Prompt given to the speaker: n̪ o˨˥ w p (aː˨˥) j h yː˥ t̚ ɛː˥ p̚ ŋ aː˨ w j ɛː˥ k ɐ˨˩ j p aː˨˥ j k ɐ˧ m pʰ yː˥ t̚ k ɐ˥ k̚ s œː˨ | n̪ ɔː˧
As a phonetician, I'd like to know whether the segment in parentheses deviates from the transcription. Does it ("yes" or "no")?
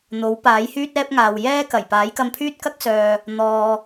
no